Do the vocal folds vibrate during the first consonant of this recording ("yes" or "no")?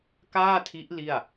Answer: no